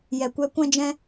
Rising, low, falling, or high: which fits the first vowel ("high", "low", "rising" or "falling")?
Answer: low